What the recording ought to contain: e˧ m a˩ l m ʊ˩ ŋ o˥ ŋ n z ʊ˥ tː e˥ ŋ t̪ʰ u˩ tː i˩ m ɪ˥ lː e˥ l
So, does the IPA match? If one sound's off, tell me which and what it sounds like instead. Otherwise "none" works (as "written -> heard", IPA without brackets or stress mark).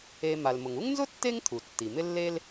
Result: o˥ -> u˥